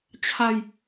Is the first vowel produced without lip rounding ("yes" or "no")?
yes